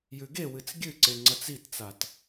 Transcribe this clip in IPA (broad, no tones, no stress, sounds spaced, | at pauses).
j ʉ ɡ e w ɨ t͡s ɡʲ ɨ ǀ e ŋ͡ǀ ɐ t͡s i t t͡s a t